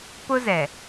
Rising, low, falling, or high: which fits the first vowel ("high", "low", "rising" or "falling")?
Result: high